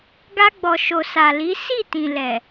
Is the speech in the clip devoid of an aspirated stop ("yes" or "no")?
yes